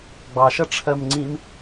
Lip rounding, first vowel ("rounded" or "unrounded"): unrounded